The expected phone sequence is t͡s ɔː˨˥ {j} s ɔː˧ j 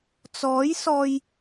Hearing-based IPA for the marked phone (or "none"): j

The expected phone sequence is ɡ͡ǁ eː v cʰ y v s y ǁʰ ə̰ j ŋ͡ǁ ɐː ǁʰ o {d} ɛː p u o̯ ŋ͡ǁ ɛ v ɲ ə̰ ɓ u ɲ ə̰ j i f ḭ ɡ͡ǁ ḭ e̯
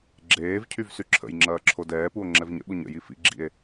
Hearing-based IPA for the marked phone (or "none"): d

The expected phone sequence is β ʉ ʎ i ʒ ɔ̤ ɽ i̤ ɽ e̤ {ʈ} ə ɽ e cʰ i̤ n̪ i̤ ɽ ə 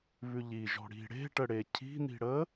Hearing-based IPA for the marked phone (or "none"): ʈ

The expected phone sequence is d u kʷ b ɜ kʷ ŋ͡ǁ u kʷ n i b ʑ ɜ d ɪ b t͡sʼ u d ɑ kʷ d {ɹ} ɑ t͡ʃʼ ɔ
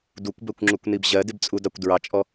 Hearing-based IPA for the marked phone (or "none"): ɹ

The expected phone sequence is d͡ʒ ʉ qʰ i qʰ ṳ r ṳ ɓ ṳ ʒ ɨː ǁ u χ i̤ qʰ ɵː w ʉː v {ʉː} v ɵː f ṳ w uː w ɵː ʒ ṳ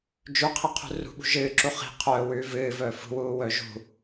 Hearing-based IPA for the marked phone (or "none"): ɨː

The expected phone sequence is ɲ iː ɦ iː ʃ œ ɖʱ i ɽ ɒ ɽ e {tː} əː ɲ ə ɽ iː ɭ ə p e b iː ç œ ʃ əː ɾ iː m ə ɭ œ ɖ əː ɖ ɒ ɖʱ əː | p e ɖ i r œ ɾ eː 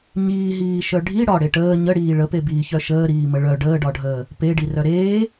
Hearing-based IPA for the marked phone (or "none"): ʈ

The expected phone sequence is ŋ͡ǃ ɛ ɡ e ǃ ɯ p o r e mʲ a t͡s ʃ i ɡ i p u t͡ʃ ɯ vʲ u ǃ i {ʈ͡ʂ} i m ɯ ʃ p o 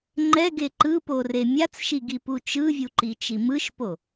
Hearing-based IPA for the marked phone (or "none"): t͡ʃ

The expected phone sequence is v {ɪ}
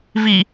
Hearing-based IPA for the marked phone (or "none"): i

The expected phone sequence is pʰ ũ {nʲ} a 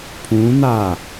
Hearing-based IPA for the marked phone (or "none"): n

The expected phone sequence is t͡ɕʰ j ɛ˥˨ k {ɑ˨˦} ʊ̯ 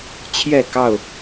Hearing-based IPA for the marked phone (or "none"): ɑ˥˨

